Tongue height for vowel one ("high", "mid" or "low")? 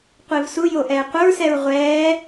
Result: mid